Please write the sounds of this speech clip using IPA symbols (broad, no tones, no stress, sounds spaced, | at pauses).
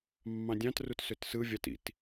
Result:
mː ɑ̃ dʲ ɑ̃ t r u t s ø t s ɯ vʲ ɑ t ḭ t